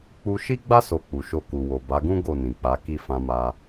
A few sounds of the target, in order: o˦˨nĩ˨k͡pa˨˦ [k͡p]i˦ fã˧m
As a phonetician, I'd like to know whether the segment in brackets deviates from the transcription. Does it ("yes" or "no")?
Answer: yes